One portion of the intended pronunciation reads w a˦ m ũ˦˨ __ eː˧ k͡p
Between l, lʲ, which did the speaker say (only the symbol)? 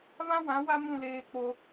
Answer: l